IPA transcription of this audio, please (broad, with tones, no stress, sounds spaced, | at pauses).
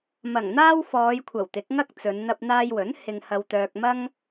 m ɐ˨˩ ŋ n̪ aː˥ w f ɔː˨˧ j kʷʰ ɐ˨˩ w t̪ ɪ˨˥ k̚ ŋ ɐ˥ k̚ t͡s ɵ˨˧ n n̪ ɐ˧ p̚ n̪ aː˧ j w ɵ˨˥ n h ɪ˧ ŋ h ɐ˧ w t̪ œː˧ k̚ m ɐ˥ ŋ